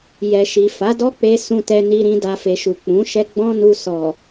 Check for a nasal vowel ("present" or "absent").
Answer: present